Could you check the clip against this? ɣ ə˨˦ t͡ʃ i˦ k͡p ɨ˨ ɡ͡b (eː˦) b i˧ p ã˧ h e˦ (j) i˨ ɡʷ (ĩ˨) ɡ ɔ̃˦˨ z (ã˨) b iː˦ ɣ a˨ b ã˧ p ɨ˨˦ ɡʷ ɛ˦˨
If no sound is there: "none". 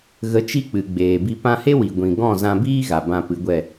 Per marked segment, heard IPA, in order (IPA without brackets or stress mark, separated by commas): eː˨, w, ĩ˨, ã˧